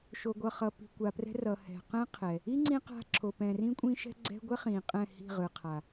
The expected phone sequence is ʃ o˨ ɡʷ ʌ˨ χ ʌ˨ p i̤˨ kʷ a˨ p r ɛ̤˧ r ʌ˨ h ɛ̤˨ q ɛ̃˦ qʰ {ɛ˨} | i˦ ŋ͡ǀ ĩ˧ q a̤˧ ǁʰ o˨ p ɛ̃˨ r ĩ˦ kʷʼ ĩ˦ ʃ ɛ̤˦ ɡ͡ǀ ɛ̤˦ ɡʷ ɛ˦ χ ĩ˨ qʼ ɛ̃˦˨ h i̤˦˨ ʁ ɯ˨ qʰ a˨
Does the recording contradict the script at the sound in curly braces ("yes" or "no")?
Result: no